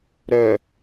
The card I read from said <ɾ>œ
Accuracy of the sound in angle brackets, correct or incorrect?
correct